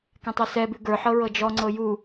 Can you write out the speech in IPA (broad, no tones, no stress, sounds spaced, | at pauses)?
k ɛ̃ tˤ u s ɛ b ʉ ɡ ə˞ ħ ɤ ɹ ɤ d͡ʒ ɔ ŋ͡ǀ ɤ j u